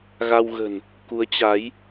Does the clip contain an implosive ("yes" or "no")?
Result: no